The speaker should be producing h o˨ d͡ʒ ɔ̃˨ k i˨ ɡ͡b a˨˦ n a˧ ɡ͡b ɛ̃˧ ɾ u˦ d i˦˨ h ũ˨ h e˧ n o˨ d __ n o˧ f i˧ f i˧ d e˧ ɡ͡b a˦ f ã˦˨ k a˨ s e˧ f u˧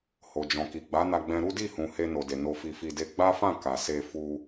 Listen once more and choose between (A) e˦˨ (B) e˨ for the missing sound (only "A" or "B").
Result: B